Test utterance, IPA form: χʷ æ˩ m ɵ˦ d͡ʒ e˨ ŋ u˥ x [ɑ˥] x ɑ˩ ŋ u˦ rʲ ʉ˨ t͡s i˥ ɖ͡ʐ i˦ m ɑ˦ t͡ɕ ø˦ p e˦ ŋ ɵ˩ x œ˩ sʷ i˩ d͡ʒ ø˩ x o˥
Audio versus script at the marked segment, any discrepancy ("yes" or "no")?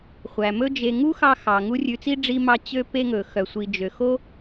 yes